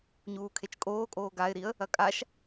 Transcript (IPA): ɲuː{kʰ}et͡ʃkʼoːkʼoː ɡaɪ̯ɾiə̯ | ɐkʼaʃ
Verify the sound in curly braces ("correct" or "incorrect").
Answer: correct